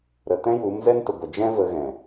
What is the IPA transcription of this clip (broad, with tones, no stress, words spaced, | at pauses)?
ɾə˨tɛ̃˦ju˨˦m zɛ˦ntə˨ ɡʷə˨d͡ʒɛ̃˦ və˧ɣɛ̃˨